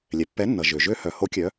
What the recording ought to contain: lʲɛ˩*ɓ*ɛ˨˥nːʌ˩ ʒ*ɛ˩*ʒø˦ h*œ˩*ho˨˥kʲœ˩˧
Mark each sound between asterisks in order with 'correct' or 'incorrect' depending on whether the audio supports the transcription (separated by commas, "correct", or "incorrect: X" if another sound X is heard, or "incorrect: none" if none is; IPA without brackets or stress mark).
incorrect: pː, incorrect: ø˩, correct